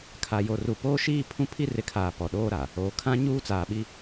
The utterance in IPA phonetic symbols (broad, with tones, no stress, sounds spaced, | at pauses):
kʰ a˨ j o˨ r u˨ p oː˦ ʃ iː˦ pʰ ũ˦ pʰ i˦ r ɪ˨˦ kʰ aː˨ p ɔ˨ ɗ oː˦ ɾ a˨ | oː˨ kʰ ã˦ ɲ uː˦ t͡s aː˨ ɓ i˦